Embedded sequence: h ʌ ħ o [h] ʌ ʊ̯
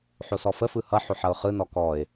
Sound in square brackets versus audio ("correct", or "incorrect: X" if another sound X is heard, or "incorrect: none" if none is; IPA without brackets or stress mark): incorrect: ħ